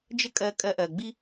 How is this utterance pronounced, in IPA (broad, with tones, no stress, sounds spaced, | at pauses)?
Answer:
d͡ʒ ə˥ kʼ ɜ˧ kʼ ɜ˧ ʔ ɜ˩ ɡ͡b i˥